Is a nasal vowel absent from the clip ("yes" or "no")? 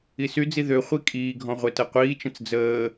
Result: no